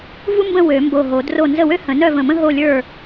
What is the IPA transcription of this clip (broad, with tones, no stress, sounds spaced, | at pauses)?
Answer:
v u˥ m b ə̃˥˨ w ø˨˩˦ m b o˧˩ ɦ o˨˩˦ d r o˥˨ n z ə˥˨ w ø˥ h ə̃˨˩˦ n œ˥˨ v ə̃˧˩ m ə̃˥ ɦ o˥˨ lʲ ə˞˥˨